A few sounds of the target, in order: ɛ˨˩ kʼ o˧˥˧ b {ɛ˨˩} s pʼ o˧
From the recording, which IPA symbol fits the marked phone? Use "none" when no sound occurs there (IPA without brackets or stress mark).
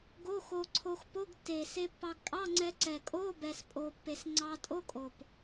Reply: ɛ˧